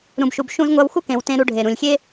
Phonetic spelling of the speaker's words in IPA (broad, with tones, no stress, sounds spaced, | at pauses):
ɾ ũ˩ b ʃ u˩ b ʃ ũ˧ z ŋʷ a˧ w x u˥ k ẽ˩ w t ẽ˧ ɾ u˧ ɖʱ e˩ ɾ ũ˩ lʲ xʲ e˥